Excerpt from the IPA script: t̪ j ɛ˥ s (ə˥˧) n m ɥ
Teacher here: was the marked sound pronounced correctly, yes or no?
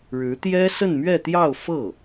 yes